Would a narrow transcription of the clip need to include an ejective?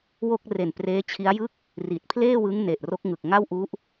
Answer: no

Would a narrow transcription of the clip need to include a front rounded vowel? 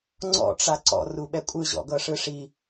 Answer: no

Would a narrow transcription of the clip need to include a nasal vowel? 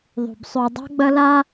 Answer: no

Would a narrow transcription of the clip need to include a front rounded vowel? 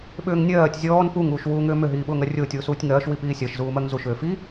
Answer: yes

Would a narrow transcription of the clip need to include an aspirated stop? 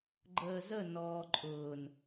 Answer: no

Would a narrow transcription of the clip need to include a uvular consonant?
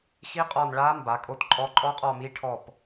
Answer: yes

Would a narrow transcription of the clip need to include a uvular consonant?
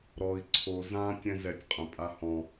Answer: yes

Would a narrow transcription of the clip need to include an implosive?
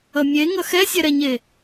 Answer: no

